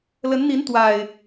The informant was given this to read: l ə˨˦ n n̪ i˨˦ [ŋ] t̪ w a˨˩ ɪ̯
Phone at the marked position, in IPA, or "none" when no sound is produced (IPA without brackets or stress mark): n